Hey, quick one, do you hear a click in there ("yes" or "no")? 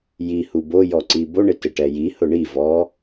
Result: yes